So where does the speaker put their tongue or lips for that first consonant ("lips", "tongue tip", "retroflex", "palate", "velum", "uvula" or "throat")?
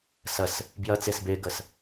tongue tip